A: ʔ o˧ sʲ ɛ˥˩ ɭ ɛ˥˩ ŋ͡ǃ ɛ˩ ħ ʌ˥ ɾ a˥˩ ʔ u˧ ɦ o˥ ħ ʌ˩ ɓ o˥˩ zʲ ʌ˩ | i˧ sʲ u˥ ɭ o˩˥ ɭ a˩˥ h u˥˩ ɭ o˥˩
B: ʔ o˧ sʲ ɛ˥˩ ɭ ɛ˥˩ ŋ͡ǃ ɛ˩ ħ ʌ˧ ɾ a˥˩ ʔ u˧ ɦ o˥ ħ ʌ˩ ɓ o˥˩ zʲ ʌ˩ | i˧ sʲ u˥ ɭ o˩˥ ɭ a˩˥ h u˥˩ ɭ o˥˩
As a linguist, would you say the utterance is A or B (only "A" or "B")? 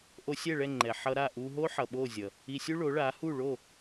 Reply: B